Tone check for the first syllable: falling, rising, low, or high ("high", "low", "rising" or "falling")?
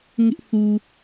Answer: high